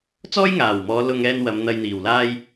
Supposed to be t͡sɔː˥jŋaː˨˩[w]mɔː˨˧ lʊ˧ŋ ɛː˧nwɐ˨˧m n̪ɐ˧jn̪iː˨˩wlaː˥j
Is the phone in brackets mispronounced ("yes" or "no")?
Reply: no